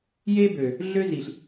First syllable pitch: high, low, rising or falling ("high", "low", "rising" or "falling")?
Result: high